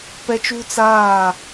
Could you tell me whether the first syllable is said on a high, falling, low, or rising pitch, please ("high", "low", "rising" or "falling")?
high